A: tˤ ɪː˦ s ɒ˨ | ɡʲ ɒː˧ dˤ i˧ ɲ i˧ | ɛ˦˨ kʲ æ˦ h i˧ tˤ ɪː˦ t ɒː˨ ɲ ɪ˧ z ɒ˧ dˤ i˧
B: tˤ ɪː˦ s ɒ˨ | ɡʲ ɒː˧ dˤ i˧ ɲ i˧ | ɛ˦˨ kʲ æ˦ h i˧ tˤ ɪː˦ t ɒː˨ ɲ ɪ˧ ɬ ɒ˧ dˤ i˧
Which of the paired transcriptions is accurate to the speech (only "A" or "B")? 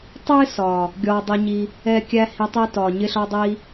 B